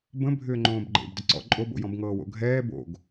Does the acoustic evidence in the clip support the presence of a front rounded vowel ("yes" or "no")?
yes